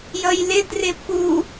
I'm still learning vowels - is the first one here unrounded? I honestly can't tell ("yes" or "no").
yes